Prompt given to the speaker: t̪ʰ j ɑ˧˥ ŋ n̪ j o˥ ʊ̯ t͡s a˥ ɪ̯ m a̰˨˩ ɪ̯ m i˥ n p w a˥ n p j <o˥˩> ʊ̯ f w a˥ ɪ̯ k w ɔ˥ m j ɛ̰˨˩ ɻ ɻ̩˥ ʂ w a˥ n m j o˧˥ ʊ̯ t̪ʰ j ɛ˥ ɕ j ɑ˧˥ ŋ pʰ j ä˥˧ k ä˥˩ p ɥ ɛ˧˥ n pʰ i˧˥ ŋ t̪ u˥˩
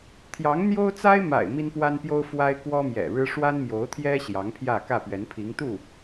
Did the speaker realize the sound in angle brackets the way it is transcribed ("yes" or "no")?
no